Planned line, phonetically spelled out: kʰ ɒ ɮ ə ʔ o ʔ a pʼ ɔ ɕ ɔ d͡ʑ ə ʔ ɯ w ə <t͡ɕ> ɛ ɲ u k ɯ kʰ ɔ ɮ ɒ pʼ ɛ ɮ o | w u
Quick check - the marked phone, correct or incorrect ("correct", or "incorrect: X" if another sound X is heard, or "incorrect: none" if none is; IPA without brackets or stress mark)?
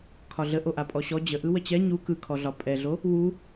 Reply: correct